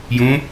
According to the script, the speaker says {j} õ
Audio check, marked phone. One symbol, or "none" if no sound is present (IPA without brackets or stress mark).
j